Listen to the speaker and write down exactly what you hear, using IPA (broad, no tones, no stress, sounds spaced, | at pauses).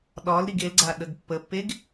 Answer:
ɗ ɒ l ɾ i ɡ e l ɡ͡ǀ a ɗ ə ɡ pː ə pː e ɡ